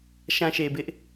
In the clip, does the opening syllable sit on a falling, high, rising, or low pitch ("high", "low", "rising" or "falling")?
low